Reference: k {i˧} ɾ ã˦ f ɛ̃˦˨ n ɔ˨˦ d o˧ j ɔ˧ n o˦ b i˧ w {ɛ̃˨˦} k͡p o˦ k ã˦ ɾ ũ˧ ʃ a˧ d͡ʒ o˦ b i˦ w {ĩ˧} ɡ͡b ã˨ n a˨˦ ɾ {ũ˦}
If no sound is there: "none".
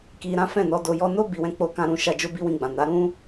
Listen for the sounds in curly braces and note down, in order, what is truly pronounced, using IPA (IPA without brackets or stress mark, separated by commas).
i˧, ɛ̃˦, ĩ˧, ũ˦